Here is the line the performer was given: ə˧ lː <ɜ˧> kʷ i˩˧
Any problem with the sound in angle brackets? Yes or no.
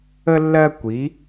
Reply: no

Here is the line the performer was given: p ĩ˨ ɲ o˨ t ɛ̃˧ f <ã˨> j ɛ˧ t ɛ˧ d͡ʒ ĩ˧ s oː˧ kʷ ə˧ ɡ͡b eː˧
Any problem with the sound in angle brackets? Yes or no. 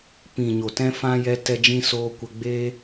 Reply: yes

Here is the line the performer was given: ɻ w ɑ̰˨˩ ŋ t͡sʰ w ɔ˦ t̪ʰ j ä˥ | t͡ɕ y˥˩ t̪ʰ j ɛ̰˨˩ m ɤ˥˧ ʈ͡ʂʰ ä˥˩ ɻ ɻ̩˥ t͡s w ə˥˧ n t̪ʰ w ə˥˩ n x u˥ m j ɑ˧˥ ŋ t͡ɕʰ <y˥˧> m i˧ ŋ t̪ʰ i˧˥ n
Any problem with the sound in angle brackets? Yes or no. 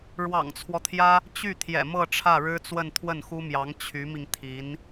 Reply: yes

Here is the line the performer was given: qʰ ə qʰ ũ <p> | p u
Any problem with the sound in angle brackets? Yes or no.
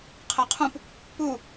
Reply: no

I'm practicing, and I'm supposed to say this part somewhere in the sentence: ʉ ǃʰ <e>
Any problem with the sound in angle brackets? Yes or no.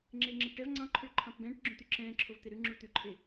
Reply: no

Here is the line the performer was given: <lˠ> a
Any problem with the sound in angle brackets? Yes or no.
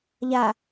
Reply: yes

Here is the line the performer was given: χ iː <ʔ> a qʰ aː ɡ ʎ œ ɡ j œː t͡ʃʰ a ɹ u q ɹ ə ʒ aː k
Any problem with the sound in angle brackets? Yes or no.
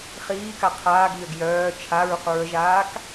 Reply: yes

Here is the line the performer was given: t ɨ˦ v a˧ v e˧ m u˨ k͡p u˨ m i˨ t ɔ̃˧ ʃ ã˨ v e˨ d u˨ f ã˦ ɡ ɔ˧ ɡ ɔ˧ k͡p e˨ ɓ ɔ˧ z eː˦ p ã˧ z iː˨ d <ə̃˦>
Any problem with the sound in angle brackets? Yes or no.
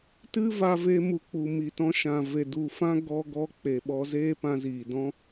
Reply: yes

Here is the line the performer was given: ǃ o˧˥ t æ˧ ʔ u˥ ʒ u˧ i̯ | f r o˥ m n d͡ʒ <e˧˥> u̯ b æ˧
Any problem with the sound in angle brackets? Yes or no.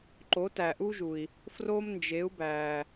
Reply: no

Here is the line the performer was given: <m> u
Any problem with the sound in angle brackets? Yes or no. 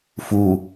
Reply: yes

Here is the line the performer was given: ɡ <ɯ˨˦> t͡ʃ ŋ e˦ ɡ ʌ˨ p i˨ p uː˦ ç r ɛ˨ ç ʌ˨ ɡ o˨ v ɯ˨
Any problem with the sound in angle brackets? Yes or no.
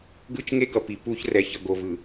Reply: yes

